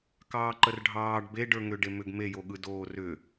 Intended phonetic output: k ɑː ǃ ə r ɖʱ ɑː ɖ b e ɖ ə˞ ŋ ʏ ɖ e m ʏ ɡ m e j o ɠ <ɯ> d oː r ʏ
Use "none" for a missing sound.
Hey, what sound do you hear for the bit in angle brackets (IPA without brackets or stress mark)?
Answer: ɯ